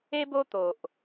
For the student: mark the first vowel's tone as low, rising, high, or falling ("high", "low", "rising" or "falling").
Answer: high